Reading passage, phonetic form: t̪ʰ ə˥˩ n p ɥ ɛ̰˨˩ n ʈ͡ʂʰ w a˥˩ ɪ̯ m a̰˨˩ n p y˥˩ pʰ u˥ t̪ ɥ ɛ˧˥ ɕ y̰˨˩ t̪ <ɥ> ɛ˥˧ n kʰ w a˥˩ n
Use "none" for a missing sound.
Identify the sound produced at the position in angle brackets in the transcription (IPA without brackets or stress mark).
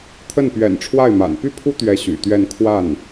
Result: ɥ